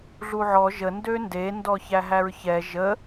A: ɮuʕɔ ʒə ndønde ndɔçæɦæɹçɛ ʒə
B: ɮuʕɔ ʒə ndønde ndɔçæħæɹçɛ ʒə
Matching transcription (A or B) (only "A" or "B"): A